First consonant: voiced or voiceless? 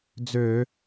voiced